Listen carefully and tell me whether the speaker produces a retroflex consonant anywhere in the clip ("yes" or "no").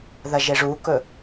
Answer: yes